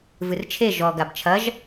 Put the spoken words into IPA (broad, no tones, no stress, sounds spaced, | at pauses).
v ɨ r t͡ʃʰ e ʒ ɔ ɡ a b t͡ʃʰ ɐ ʒ